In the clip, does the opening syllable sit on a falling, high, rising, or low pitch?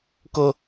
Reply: low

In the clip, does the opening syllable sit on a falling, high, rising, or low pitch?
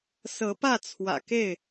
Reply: rising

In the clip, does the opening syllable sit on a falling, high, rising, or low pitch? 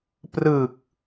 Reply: low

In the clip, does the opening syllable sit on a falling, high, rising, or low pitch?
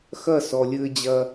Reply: falling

